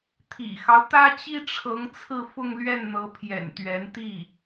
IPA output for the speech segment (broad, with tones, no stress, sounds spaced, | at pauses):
t̪ʰ ḭ˨˩ x ɑ˦ ʊ̯ t̪ ä˥ t͡ɕ i˥ ʈ͡ʂʰ ɤ˧˥ ŋ t͡sʰ ɹ̩˥˧ f ʊ˥˧ ŋ l ɥ ɛ˥˩ n n̪ ɤ˧˥ pʰ j ɛ̰˨˩ n t̪ ɥ ɛ˧˥ n t̪ i˥˩